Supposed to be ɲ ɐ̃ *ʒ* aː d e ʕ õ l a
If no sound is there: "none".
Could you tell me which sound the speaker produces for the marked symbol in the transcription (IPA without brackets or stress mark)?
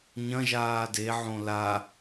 ʒ